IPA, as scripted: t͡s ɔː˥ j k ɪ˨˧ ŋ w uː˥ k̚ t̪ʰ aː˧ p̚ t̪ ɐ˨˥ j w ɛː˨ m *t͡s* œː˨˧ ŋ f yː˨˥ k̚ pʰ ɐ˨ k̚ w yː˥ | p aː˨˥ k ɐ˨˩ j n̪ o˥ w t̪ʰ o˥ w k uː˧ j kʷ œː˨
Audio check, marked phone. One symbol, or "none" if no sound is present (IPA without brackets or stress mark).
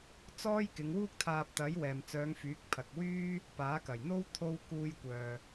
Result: t͡s